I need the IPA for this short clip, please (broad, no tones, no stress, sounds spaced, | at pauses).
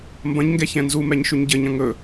m b ɐ̃ ɲ ŋ ɡ ɛ ç ɛ̃ n z u m ɛ ɲ ʃ ʉ ɲ ɟ ɘ ɲ ɐ̃ ŋ ɵ